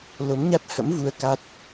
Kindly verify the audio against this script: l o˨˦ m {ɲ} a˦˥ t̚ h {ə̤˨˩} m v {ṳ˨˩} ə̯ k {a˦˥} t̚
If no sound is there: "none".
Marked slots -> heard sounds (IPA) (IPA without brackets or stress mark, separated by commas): ɲ, ə̰˧˥, u˧, a˦˥